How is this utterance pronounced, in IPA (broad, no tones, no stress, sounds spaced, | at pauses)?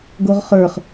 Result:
ɡ o ʁ χ ə˞ χ